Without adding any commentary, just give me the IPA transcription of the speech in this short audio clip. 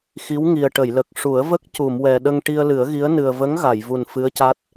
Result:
x i˧˥ w ŋ i˨˩ ə̯ ʈ ə˨˩˨ j l ə˨˩ k̚ ʂ u˨˩˦ ə̯ v ə˦˥ k̚ c u˨˩˨ m w ɛ˨˩ ɗ ə˧ ŋ ʈ i˧ ə̯ l ɨ˨˩˦ ə̯ ɣ i˧˥ ə̯ n ɨ˨˩ ə̯ v ə˧˥ ŋ ɣ a˨˩˨ j v u˨˩ n f ɨ˧˥ ə̯ c a˦˥ t̚

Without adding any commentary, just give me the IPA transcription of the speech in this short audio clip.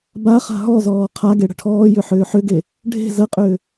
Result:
b a χ a̤ ɦ ɔ z ɔː qʰ a ɡ e ɽ ə̤ ʈʰ ɔː j ʏ ħ ʏː ħ ʏ ɡ e | ɖʱ e̤ z ə qʼ ʏː

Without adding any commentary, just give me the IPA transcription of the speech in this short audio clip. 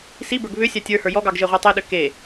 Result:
s i b ə˞ ɡ β ʏ sʲ a tʲ ə˞ h ə˞ j ɔ ɡ ɑ ɡ ʒ e ʁʷ ɑ tˤ e ɗ ʏ k e

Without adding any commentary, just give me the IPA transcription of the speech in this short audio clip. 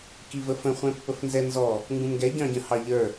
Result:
k i v ə f ə̃ χʷ ɛ̃ pː ə f n z ɛ n z ɔ | ŋ ɡ ũ m ɡ ɛ ɟ ɑ̃ ɟ ə̃ h ɑ ʎ ə˞

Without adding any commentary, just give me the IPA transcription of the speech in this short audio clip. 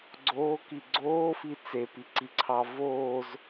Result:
ɡ͡ǀ oː k i ɡ͡ǀ oː f i t͡s e p i ǀ i ǀʰ ɑ v oː z

